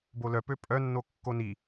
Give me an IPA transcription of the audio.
b o l œ p ø pʼ œ nː o kː o n i

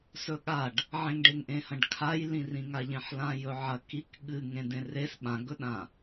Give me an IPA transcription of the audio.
s ɵ ɠ a ɖ | ʕ ẽ ŋ ɖ e ŋ ʔ ẽ h ɐ̃ ɖ kʰ a j l ĩ r ĩ ŋ a ʎ ẽ ħ l ã j ɵ ʕ ɐ k i k ɠ ɨ ŋ ẽ d ẽ r e s ɓ ã ɡ ɵ ɗ ã

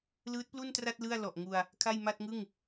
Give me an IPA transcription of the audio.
l ɯː˦˥ t̚ p l u˥˩ n t r a˥˩ t̚ l ɯ˥˩ a̯ l ɔ˨˩ ʔ ŋ u˧ a̯ | kʰ a˥˩ j m a˥˩ t̚ ŋ ɯ˥˩ ŋ

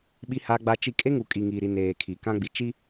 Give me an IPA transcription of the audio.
ɓ i˦ h a˦ ɡ͡b a˦ t͡ʃ i˦ kʼ e˦ ŋ u˨ kʼ i˨ ŋ iː˨ ɾ i˨ n eː˨ kʰ i˨ k ã˦ ɡ͡b i˨ t͡ʃ i˦

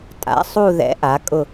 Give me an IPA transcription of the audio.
tʼ a̰˩˥ sˤ u˦˨ ð ɛ̰˩˥ ʔ a˩˥ kʼ ʊ˦˨

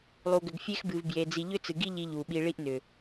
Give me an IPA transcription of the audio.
lˠ u˨ ɡ ʏ˨ ɡ fʲ e˦ x b ɨ˨ v b j e˨ d͡z i˨ ʎ ʏ˦ t͡s ɨ˨ ɡ i˦ ʎ i˦ ʎ u˨ ɓ i˦ ɭ i˦ ʔ n ʏ˨

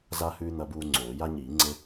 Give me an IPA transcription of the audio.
z a˦ h ʉː˦ n̪ ɐ˦ b uː˦ ŋ͡ǀ oː˨˩˦ j a˦ ɲ iː˨˩˦ ŋ͡ǀ e˦

